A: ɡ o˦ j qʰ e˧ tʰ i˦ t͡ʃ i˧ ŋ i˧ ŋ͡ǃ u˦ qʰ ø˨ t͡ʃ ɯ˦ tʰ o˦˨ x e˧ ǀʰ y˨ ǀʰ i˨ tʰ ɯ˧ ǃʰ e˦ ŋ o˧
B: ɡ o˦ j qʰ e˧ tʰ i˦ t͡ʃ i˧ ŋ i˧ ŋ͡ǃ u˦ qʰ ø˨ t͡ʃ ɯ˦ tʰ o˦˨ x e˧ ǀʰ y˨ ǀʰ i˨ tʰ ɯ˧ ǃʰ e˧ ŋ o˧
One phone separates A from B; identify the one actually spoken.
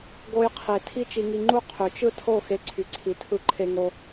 B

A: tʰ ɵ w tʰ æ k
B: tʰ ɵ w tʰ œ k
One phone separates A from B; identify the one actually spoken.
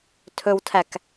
A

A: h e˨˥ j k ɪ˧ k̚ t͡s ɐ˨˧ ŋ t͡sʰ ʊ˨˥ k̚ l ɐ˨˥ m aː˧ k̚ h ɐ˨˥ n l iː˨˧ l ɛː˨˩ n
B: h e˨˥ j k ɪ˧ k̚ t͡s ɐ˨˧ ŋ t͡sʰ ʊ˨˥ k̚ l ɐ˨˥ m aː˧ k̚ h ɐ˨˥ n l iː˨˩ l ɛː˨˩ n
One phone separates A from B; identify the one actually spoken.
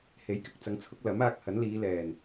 A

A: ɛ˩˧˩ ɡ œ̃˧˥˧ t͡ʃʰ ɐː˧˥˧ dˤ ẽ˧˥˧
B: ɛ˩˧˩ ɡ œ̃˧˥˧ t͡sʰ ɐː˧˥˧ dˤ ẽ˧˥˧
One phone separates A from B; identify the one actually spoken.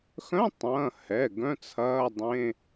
B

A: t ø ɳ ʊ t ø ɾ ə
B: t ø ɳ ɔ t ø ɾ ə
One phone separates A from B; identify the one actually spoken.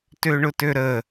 A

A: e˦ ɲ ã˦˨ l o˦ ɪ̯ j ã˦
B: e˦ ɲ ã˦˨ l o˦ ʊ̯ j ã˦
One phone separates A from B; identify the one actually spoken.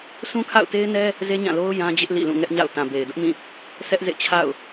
B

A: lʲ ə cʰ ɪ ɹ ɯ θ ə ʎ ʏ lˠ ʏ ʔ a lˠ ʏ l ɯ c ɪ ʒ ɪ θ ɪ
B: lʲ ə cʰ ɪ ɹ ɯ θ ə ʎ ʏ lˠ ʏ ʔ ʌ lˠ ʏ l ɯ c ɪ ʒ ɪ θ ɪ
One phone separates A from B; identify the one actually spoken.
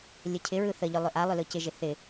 A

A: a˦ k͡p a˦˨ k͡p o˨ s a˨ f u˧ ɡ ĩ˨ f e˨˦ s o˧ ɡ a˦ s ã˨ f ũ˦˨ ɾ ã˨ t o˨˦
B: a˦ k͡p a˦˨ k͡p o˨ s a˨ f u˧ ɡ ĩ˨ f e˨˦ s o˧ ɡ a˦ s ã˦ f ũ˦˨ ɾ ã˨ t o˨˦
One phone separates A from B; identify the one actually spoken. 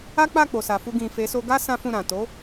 B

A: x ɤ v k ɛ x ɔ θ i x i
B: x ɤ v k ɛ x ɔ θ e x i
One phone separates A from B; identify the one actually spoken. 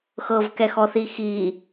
A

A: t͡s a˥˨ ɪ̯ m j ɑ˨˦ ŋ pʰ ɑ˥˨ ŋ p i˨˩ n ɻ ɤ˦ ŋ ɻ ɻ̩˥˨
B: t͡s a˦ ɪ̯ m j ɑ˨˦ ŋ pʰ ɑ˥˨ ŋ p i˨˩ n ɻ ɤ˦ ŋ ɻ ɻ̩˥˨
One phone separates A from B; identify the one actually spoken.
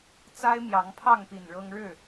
B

